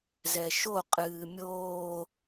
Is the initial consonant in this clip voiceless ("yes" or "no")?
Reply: no